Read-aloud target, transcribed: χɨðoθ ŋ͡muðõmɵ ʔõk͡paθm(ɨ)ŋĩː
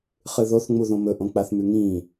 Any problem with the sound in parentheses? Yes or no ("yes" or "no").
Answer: yes